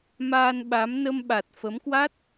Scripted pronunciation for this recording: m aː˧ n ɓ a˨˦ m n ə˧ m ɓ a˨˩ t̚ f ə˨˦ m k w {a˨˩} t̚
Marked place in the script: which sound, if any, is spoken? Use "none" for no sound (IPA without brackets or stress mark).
a˦˥